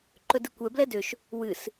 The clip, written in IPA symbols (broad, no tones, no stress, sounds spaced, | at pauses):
ǃ ɵ d ɨ kʷ ɛ b l ɛ d ø ʃ | w ɨ s